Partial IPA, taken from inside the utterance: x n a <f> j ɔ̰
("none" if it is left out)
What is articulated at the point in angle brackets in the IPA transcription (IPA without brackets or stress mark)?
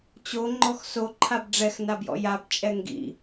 b